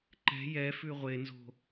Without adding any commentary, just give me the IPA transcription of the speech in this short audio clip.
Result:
ǃ ɛ̤ j ɛ f ʉ ʁʷ e n z o̤

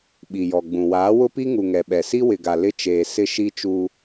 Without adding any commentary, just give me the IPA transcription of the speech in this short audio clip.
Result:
ɓ i˨ j ɔ˨ ɡ͡b ũ˨ w aː˨˦ w ʊ˦ p i˦ ŋ u˨ ŋ ɛ˨ ɓ ɛ˨ s i˦ w ɪ˨ ɡ a˨ l ɪ˦ t͡ʃ eː˨ s ɪ˦ ʃ i˦ t͡ʃ u˦

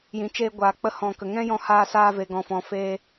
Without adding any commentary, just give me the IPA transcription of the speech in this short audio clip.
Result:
j ĩ˨ t͡ʃ eː˧ ɡʷ aː˨ k͡p ə˧ h ɔ̃˨ k ə˨ ŋ ɛ̃˦ j ɔ̃˧ h aː˧ s aː˧ v e˨ ɡ ɔ̃˨ f ɔ̃˨ f eː˧

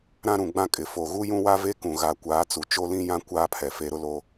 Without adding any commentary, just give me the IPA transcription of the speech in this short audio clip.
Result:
ɾ ã˦ ɾ ũ˨ ɡ͡b ã˦ kʼ ɪ˨ f o˨ ɣ u˦ j ũ˦ w a˦ v e˦ k ũ˨ ɣ a˨ kʷ aː˨˦ t͡s u˨ t͡ʃ o˦ l ĩ˦ j ã˦ kʷ aː˦ pʰ ɛ˨ f e˦ ɾ ʊ˦ l o˦

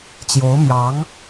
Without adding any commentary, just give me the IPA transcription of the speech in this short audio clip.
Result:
t͡ɕ j o˧˥ ʊ̯ m j ɑ˧˥ ŋ

